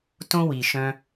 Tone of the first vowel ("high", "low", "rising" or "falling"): high